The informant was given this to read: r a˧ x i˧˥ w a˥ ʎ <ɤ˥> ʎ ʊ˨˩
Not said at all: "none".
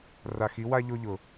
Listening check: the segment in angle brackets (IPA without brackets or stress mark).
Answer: o˥